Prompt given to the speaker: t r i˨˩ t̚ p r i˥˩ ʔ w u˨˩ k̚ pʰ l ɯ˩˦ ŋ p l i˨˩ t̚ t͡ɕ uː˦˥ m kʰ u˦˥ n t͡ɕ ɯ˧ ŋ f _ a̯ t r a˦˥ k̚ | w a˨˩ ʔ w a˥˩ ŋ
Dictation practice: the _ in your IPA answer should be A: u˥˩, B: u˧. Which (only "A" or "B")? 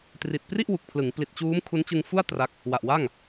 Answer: A